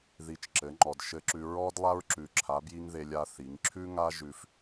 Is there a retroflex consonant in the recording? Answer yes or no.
no